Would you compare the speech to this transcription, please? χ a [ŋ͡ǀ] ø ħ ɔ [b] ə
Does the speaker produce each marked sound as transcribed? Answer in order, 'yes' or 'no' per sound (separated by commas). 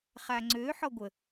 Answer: yes, no